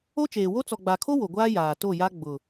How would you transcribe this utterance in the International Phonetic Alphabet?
o˦t͡ʃeː˨wo˦ t͡sɔ˨ɡ͡ba˨kʰo˦ wo˨ɡʷaː˦ jaː˨to˦˨ja˦ ɡ͡bʊ˨

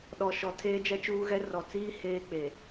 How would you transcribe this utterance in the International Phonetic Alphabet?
ɗɔ˨ʃɔ˨ tʰeː˦d͡ʒɛ˦t͡ʃuː˦ɣɛ˦ rɔ˨ t͡siː˦ heː˦k͡pe˨

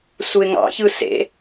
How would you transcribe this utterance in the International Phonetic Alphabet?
suɪ̯ŋɑ̰çɯ sḛ

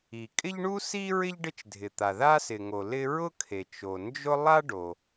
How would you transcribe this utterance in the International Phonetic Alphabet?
i˩ kʼɪ˥ʎɳu˥ si˥ɹɪ˥ʎ ɖɪ˥t͡ʃdʱɪ˩t̪a˩ ða˥sɪ˩ŋo˩ lɪ˥ ɹʊ˥kʰe˩ t͡ʃo˩nd͡ʒʊ˥ lˠa˥ɖo˩

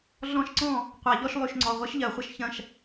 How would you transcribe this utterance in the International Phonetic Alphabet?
ɮɔ̃˦˥ʃǀɔ̃˥˩ | qʷa˧˩˧ʎɔ˥˧ʃlˠy˧˩˧ʃŋ͡ǀɔ˩˧˩ ʁʷi˦˥ʃʎɜ˧˩˧χʷə˥˩ʃ çɐ̃˥˩ʃ

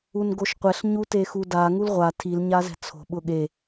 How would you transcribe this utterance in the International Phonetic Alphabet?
unɡoʃqʷɛɬ ɲutexuda ŋulʁʷa tʰil ɲazɛ̤t͡sʰo̤ ɓʊɠe

